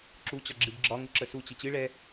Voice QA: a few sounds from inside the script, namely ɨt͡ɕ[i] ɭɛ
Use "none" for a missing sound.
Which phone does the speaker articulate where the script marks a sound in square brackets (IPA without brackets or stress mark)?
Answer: ɨ